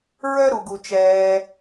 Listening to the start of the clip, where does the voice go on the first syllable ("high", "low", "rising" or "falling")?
high